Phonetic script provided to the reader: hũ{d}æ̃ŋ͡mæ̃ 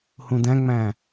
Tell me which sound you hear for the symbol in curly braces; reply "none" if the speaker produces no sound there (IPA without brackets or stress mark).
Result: d